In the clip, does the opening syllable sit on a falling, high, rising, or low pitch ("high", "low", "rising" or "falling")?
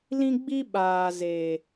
high